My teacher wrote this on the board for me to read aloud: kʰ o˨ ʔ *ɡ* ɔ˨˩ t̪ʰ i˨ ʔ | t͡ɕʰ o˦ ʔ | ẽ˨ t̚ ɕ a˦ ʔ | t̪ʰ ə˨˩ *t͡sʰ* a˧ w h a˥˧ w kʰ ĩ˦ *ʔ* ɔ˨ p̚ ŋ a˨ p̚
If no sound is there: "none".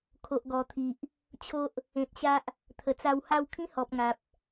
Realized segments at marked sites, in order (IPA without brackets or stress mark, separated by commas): ɡ, t͡s, h